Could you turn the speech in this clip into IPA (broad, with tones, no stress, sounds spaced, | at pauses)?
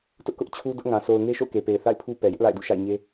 t ʊ˦ ʔ k ʊ˦ ʔ t͡ɕʰ u˦ d ʊ˦ ʔ ŋ ã˨ s o˨ ʊ̯ ŋ e˦ ʃ o̰˦˨ ʊ̯ k e˨ p e˨ ɪ̯ θ a̰˦˨ ɪ̯ pʰ u˦ p ɛ˨ j ɪ˦ ʔ l a̰˦˨ ɪ̯ d ṵ˦˨ ʃ a̰˦˨ ɪ̯ ɲ e˦